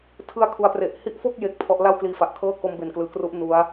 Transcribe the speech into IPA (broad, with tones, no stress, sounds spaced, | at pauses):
tʰ ɯ˦˥ a̯ kʰ u˩˦ a̯ p r e˨˩ ʔ h i˦˥ ʔ f o˥˩ k̚ j e˦˥ k̚ pʰ ɔ˦˥ ʔ l a˥˩ w k l iː˧ f a˨˩ ʔ kʰ ɤː˥˩ k o˦˥ m b e˨˩ n k l ɯː˨˩ k r u˦˥ ʔ n u˦˥ a̯